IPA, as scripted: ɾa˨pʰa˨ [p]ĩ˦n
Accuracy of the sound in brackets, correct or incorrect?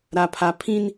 incorrect